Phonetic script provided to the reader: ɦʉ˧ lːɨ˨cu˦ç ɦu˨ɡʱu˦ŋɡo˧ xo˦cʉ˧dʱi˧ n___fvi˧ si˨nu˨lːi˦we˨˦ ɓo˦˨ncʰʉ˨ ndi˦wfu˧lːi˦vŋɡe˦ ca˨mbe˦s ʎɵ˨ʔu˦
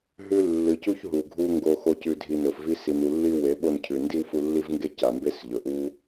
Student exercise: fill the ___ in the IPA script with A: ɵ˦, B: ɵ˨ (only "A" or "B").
B